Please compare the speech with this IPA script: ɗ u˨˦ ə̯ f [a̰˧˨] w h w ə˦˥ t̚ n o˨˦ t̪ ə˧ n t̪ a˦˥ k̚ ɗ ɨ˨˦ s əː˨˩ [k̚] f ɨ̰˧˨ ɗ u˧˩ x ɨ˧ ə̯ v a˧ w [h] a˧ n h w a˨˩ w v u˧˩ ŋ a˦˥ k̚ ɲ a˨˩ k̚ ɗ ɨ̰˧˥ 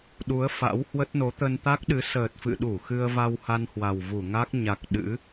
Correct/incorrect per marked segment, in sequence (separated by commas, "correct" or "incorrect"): incorrect, incorrect, correct